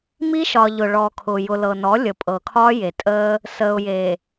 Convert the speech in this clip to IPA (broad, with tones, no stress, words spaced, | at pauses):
mi˦ʃɒ˨ ʎʊ˨ɭɔ˨kʰʊ˨ jʊ˨lɤ˨nɔ˨˦ lʲə˨pʼɤ˨kʰɒ˦ je˨tʼəː˦ | səː˨ʊ̯je˨